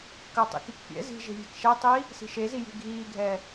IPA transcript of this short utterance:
k ɜ tˤ ḭ k i k pʲ ɛ̰ z i̤ ʒ e̤ vʲ e̤ k ʃ ɛ tˤ iː | s i̤ ʃ e z i j i̤ ɡʱ iː ɡʱ ɛː

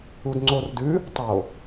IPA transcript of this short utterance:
u d ŋ͡ǀ o r d ʉ | tˤ o

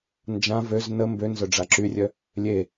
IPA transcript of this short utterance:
n d͡ʒ ã v ø z n ə m b ø n z œ ɖ͡ʐ a ǁ y rʲ œ | lʲ e

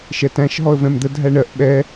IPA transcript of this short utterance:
ʃ ɛ t æ̃ ʃ ɦ ɔ ə̯ v ɛ̃ m d̪ ə dʱ æ ɳ ɜ ʔ ɓ ɛ

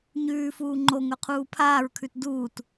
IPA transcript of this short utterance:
ɲ ʉː f uː ŋ͡ǃ o ŋ ɵ qʰ uː pʰ aː ɹ kʰ ʉ t d uː t

